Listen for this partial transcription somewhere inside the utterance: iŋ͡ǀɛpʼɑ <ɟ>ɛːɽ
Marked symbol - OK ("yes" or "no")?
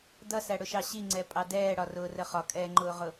no